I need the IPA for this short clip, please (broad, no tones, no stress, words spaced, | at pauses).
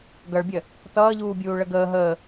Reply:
ɡʌɭbʲɜ | tʌːʎuːbʲuː ɭəɡəː ɦəː